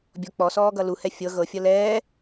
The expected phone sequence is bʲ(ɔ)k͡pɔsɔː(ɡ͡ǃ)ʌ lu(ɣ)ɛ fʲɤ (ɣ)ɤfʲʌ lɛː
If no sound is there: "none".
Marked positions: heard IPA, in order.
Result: ɔ, ɡ, h, ɣ

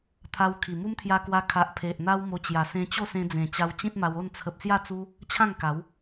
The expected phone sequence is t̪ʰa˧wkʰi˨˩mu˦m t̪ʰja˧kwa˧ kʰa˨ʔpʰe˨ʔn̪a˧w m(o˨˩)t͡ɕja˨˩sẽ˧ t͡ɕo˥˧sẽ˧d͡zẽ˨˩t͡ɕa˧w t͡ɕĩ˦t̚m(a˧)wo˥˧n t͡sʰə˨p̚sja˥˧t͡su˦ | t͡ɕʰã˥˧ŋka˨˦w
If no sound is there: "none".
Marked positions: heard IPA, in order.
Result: o˧, a˧

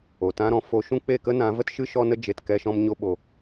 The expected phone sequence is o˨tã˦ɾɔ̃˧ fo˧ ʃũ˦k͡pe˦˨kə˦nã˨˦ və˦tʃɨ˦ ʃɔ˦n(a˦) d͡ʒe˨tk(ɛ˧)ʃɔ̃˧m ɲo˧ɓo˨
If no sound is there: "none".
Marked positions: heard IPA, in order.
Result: ə˦, ɛ˧

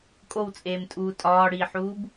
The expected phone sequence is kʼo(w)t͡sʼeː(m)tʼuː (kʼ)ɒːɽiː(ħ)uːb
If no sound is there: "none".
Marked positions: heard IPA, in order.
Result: w, m, tʼ, ħ

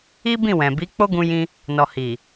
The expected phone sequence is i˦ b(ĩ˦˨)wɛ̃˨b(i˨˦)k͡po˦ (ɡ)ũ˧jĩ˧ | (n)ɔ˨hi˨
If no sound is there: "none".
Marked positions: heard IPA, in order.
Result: ĩ˦˨, i˨˦, ɡ, n

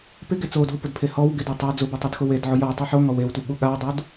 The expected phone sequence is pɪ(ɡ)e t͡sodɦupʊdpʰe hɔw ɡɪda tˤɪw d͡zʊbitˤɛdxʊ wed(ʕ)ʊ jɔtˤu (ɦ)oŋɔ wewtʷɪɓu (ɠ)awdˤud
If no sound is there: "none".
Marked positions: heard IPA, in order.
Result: ɡ, ʕ, ħ, ɠ

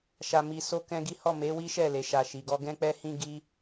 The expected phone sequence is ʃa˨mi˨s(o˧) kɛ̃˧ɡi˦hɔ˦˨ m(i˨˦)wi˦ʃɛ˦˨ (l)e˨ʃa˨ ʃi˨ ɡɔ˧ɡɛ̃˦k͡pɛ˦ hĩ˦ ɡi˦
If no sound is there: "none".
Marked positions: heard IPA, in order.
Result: o˧, e˨˦, l

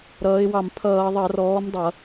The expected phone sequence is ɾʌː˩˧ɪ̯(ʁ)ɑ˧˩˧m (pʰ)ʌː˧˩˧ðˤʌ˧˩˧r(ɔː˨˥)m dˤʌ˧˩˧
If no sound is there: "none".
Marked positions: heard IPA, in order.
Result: w, pʰ, ɔː˨˥

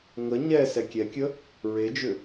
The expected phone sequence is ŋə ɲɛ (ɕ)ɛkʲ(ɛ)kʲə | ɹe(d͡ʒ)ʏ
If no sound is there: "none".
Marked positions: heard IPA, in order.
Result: s, ɛ, d͡ʒ

